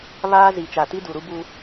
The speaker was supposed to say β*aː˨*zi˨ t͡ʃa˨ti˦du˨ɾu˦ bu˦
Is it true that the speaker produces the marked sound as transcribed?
no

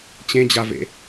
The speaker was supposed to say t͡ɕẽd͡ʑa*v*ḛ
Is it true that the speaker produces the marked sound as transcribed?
yes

